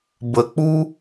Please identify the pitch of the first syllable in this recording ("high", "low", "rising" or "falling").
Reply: low